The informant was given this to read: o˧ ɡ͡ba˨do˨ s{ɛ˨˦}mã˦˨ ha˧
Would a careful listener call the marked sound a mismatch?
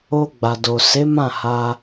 yes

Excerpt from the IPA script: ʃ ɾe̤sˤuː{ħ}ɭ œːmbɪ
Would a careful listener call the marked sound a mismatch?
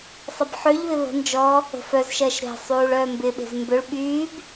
yes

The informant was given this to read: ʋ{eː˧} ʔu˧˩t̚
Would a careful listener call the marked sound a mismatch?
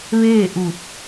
yes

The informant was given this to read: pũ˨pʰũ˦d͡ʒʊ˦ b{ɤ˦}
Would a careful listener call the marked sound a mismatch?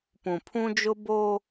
yes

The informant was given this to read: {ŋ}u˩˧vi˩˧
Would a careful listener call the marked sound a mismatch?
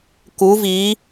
yes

